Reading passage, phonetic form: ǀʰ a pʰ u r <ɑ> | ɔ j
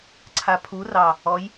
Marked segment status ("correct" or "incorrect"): correct